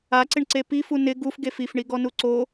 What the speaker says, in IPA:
a ǀ ɪ ɳ ǀ e p i f u n ɪ ɡ u f ɡ e f i f ɳ i ɡ ɔ n u ǀ o

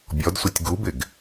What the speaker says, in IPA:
bʲ ɔ d sʷ ɪ tʲ ɡ u b ɪ ɡ

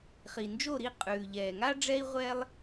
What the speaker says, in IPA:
χ i˩ n d͡ʒ o˥˨ ɾ i˥˨ qʼ ʉː˩ ʎ ɛː˩ ŋ a˦ ɖ͡ʐ ɛ˦ i̯ ʁʷ ɛ˦ lˠ

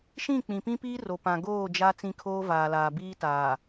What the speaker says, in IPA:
ʃ ĩ˦˨ k͡p ĩ˨ p ĩ˦ p iː˦ r o˨ p ã˨ ɡ oː˦˨ d͡ʒ a˦ t͡s ĩ˦ kʰ oː˦ v aː˨ l aː˨ b iː˦ t aː˨

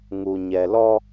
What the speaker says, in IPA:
ŋ u˨ ɲ ɛ˨ l ɔ˦

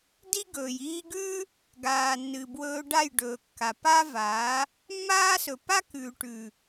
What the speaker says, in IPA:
d i˦ ɡ ɵː˨ j iː˧ ɡ ʉː˦ | ɡ aː˨ nː ɨ˨ b w ɵː˧ ɖ a˦˨ j ɖ ɵː˨ kː a˨ p a˦ v aː˨˦ | mː aː˦ s ɵ˨ p a˦ k ʉː˨ ʈ ʉː˨

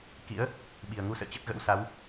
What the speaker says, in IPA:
k ḭ˧˥ ə̯ | ɓ i˨˩ ə̯ ŋ u˧ s ə̰ː˧˨ t͡ɕ ə˦˥ t̚ ɣ ə̰˧˥ w s a˨˦ w

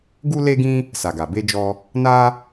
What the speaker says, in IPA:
ɡ u˦ l e˦ ɡ ĩ˦ | s a˨ ɡ a˨ b e˧ d͡ʒ ɔ˧ | n a˦

